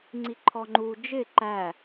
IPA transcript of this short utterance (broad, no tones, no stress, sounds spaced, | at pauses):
ŋ͡ǀ i ǃʰ ɔ ŋ͡ǃ u d͡ʒ ɪ ǃ æ